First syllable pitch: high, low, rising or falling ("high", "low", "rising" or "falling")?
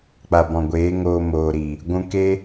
low